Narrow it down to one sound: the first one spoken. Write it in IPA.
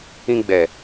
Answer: ĩ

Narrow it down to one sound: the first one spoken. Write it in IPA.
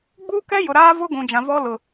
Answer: ɡ͡b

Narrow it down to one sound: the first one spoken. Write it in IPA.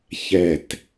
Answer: ç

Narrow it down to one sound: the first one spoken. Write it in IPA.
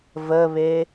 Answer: v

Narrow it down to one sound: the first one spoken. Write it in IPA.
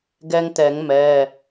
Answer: ɡ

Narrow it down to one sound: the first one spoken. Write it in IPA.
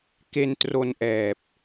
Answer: k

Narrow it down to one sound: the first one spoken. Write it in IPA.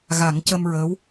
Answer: ɣ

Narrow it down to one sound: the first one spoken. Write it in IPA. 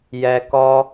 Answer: j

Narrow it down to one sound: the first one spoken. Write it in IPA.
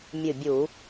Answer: mʲ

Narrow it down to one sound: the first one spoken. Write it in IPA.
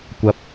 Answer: kʷ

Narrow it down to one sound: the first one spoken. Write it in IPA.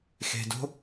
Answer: x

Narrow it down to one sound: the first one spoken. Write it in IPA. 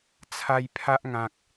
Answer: t͡sʰ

